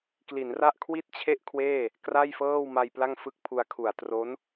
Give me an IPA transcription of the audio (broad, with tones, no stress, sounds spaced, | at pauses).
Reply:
k l i˩˦ n r a˥˩ ʔ kʰ w i˥˩ t̚ t͡ɕʰ e˥˩ ʔ kʰ w eː˥˩ | k r a˥˩ j f ɤː˥˩ w m a˧ j p l a˥˩ ŋ f ɯ˥˩ k̚ pʰ u˧ a̯ kʰ u˨˩ a̯ t r o˦˥ n